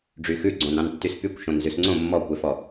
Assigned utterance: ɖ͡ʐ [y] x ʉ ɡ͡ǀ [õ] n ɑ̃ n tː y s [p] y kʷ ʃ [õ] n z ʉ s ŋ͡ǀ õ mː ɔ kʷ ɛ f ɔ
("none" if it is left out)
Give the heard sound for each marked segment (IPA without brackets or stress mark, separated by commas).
y, õ, p, õ